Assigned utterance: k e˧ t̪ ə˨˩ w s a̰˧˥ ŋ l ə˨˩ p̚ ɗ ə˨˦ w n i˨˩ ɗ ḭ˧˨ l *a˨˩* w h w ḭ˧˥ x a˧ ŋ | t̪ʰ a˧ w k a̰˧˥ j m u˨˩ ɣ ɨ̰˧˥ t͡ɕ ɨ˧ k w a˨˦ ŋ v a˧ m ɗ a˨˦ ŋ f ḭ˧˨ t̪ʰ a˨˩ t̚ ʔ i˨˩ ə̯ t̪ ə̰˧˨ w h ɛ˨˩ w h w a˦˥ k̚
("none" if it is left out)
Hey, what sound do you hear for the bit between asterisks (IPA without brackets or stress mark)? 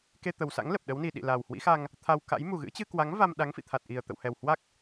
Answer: a˨˩